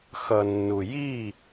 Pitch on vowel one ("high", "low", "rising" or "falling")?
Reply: low